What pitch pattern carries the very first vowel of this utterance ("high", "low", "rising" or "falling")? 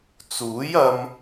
rising